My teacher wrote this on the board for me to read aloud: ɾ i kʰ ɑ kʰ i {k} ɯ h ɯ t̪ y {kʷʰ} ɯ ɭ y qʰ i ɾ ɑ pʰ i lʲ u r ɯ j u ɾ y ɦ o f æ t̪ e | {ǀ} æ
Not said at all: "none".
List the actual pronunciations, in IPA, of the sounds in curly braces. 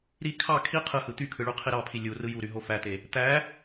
qʰ, kʰ, t̪

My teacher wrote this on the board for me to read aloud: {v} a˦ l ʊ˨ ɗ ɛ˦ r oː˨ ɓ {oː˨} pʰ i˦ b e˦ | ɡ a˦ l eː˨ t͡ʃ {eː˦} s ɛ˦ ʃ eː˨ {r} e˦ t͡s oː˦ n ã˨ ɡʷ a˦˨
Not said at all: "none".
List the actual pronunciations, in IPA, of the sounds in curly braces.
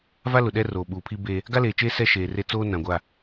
v, uː˨, eː˦, r

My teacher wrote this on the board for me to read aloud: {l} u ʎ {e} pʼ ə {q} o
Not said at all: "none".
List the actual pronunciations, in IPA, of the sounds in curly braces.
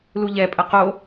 l, ɛ, q

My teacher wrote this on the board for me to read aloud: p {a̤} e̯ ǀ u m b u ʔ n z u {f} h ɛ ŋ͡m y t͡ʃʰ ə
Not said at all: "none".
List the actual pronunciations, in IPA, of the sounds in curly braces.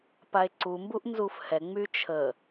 a, f

